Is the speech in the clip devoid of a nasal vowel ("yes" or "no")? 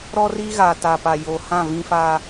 no